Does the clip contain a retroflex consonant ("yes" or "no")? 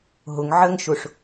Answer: yes